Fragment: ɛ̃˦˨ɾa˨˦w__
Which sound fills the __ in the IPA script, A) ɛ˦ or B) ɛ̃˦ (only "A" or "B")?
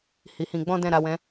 B